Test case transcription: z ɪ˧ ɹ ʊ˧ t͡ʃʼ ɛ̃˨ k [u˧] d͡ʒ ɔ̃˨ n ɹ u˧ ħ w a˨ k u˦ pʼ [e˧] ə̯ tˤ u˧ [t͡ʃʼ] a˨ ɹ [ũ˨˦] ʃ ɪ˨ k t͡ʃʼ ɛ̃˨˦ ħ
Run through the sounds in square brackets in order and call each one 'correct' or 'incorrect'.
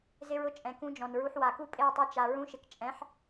incorrect: ũ˧, incorrect: e˦˨, incorrect: t͡ʃ, incorrect: ũ˧

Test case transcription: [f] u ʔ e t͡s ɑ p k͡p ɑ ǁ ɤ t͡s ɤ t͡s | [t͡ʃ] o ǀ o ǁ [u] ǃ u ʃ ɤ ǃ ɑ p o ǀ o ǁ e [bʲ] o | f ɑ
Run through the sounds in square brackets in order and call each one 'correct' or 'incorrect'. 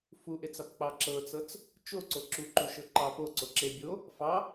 correct, correct, correct, correct

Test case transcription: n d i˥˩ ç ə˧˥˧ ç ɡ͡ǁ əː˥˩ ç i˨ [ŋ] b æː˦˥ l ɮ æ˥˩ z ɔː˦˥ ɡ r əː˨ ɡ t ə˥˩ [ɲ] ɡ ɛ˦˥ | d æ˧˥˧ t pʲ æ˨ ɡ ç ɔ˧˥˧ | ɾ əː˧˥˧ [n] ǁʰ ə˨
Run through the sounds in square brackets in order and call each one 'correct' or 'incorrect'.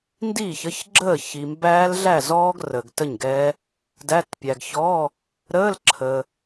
incorrect: m, correct, incorrect: l

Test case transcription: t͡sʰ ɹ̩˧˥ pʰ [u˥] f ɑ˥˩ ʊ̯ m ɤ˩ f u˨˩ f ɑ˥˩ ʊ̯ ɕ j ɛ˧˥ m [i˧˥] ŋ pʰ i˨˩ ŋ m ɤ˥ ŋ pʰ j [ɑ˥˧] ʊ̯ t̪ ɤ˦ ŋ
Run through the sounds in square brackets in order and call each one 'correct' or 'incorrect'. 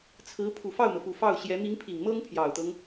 incorrect: u˨˩, correct, incorrect: ɑ˨˩

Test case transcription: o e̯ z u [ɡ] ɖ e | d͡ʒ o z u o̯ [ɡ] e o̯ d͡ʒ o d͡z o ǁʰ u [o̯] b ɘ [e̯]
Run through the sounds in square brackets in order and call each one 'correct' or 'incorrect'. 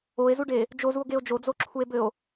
incorrect: none, correct, incorrect: e̯, incorrect: o̯

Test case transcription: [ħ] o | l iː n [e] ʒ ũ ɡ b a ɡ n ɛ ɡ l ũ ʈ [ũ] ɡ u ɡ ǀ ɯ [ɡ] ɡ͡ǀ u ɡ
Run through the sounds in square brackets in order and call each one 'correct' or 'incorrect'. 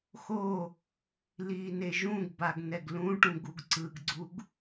incorrect: x, correct, correct, correct

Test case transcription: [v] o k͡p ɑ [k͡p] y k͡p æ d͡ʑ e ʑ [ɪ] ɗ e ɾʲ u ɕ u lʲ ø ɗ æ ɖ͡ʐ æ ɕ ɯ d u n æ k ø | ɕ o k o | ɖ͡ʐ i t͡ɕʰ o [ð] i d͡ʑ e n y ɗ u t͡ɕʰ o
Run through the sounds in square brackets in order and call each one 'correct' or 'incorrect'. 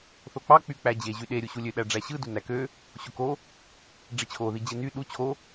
incorrect: θ, correct, incorrect: y, correct

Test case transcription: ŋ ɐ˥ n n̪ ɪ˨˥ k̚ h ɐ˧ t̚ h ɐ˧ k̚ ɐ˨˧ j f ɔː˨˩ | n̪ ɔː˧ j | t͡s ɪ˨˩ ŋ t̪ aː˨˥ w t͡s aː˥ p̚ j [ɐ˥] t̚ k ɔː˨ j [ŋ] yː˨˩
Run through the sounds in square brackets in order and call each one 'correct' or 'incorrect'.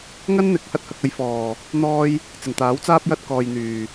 correct, incorrect: n̪

